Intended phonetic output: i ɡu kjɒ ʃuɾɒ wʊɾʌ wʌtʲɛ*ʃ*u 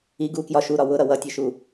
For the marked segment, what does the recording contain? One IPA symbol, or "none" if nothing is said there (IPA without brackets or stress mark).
ʃ